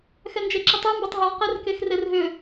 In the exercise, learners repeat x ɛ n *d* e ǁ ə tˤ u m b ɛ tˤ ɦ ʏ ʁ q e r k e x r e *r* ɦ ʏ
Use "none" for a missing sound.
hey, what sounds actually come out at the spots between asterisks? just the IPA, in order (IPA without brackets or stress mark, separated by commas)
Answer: d͡ʒ, r